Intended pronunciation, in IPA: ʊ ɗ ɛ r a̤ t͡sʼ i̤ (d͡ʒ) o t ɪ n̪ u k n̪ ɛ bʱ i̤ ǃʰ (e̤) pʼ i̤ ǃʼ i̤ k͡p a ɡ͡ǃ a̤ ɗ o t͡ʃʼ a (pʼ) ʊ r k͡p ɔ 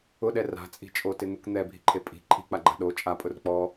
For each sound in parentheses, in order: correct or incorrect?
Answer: incorrect: t͡ʃʼ, incorrect: e, correct

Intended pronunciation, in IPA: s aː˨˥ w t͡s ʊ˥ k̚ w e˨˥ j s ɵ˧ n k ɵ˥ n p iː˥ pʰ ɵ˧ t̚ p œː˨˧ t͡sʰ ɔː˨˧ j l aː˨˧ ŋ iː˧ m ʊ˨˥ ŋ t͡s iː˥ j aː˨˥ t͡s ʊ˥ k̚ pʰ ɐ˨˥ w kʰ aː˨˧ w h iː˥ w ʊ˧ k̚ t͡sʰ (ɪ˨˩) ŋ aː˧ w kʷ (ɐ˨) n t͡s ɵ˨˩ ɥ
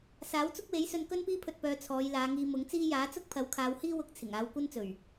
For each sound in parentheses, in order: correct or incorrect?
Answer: correct, incorrect: ɐ˥

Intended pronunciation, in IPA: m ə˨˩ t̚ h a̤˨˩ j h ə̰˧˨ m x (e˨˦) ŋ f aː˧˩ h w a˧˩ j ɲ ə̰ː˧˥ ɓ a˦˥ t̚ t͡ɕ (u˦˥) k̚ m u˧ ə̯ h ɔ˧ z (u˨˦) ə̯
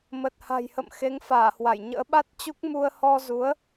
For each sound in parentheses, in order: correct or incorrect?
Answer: correct, correct, correct

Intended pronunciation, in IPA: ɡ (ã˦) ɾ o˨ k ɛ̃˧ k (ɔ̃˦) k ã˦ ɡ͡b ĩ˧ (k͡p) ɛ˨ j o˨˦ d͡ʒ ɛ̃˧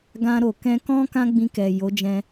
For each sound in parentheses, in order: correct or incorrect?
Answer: incorrect: ã˧, correct, incorrect: k

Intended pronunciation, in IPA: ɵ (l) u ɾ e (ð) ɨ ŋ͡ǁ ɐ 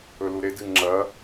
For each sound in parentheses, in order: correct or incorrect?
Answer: correct, incorrect: d

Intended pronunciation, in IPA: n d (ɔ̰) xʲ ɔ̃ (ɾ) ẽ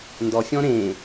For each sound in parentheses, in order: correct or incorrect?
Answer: incorrect: ɔ, correct

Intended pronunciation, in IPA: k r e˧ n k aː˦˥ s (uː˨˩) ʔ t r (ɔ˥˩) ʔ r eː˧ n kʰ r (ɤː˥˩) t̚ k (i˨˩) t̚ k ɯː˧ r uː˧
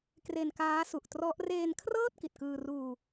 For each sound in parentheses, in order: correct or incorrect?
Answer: incorrect: u˨˩, incorrect: ɔ˦˥, correct, correct

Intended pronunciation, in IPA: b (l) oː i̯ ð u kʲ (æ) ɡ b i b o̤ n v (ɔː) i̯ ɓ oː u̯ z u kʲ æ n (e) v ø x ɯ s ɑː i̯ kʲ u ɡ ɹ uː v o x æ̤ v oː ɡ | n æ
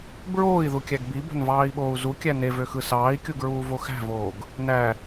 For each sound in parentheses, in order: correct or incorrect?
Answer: incorrect: ɹ, correct, incorrect: ɑː, correct

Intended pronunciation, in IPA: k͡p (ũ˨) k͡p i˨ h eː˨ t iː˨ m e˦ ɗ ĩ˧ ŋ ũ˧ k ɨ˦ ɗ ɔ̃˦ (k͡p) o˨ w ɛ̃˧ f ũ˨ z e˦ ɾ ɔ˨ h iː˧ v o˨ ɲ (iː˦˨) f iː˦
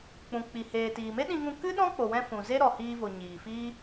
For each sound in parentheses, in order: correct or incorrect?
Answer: correct, correct, incorrect: iː˨

